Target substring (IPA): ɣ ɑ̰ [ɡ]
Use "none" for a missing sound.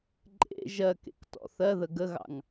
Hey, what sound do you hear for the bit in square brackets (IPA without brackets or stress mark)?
ŋ